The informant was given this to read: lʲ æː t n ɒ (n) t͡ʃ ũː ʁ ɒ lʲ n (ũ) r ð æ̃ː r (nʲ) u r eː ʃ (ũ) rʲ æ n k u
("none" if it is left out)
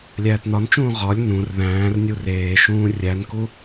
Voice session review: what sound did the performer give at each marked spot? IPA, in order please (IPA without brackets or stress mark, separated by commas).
n, ũ, nʲ, ũː